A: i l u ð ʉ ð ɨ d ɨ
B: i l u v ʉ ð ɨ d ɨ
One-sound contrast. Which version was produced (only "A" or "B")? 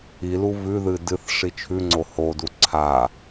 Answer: B